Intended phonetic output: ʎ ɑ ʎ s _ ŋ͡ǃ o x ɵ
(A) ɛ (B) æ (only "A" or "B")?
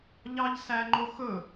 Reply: B